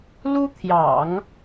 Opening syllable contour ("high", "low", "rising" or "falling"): high